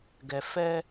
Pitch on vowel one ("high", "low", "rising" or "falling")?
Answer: low